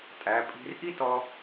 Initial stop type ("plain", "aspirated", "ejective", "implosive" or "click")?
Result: ejective